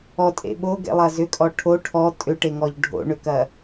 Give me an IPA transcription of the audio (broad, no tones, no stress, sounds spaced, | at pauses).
ɔ tʼ ḛ ɓ o ɡ ḛ lˠ ɐ z ʏ kʼ ɔ ʈʰ o ʈʰ ɔ tʼ ʏ ʈ e ŋ ɔ ʎ ɖʱ o̰ ɳ ʏ k ɐ